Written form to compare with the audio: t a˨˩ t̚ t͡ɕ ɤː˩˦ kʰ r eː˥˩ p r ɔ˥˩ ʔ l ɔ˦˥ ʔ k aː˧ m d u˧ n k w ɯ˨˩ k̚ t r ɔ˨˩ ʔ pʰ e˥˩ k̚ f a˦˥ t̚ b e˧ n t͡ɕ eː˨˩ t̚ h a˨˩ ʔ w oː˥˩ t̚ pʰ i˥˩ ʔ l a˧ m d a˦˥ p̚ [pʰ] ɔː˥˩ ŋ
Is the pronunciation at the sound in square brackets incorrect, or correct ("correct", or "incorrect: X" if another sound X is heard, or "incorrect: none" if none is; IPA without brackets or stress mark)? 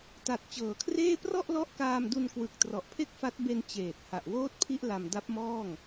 incorrect: m